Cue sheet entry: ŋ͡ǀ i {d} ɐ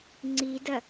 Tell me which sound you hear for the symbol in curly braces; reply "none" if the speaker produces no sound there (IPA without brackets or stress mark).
d